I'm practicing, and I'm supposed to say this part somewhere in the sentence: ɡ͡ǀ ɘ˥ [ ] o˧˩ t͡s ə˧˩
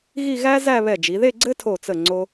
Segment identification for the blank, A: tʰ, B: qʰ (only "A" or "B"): A